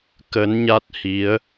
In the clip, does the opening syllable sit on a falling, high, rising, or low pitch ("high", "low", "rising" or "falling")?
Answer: rising